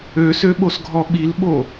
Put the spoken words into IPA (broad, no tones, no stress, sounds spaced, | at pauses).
ø s ø ɓ o s ɡʱ ɔ ɓ i l ɓ o